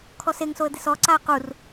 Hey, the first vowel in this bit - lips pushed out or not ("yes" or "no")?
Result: yes